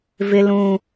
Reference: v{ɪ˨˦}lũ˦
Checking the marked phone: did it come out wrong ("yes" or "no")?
yes